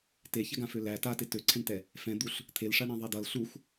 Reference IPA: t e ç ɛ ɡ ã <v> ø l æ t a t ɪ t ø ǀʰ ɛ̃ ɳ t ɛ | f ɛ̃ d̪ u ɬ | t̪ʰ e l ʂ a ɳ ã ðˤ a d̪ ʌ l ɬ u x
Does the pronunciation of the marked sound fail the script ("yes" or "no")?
yes